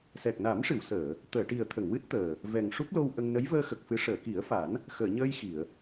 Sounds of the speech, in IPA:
s ɛ˨˩ k̚ n a˨˩˦ m ʂ ɨ˨˩˨ w s əː˨˩˨ | t̪ əː˨˩˨ ʈ i˨˩ ə̯ t̪ʰ ə˨˩˨ ŋ w ɨ˦˥ t̚ t̪ əː˨˩ | v ɛ˨˩ ŋ ʂ u˦˥ p̚ l o˧ w ʔ ə˧ ŋ n ə˧˥ j v əː˧ x ə˨˩ k̚ f ɨ˧˥ ʂ əː˨˩˨ k i˨˩˦ ə̯ f a˨˩˦ n | x əː˨˩˨ ɲ əː˧ j x i˨˩˨ ə̯

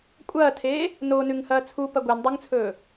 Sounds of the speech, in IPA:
kʷʼ ɐː tʰ eː | n o n ʉ ŋ h ɐː t͡sʰ u p ɐ ɡʷ e n dˤ u ŋ t͡sʰ ɵː

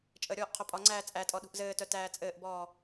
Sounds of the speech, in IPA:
t͡ʃʼ ə ɾʲ ɔː ʔ qʰ o pʼ ɒ ŋ͡ǀ æː t͡sʼ æ tʼ ɔ ɗ ṳ ʔ z ɘː t œ t æː t͡sʼ ɘː ʔ b ɔː

